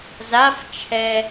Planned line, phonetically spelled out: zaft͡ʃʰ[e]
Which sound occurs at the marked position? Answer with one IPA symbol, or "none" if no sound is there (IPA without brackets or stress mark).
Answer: ɛ